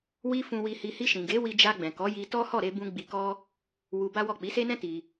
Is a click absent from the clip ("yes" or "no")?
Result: yes